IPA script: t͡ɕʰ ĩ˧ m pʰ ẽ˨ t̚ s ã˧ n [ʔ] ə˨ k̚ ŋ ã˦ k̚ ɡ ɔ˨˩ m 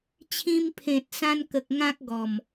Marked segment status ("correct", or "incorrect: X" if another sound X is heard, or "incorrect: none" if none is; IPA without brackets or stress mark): incorrect: k